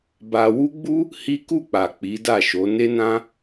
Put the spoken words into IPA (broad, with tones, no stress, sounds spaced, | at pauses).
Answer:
b a˧ w u˦ ɡ͡b u˦ | h i˦ k u˦˨ k͡p a˨ k͡p i˨˦ d a˦˨ ʃ o˨˦ n e˦ n ã˦